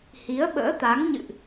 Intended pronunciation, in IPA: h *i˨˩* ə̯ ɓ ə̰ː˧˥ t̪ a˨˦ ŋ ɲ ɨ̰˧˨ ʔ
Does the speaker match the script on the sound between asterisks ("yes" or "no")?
no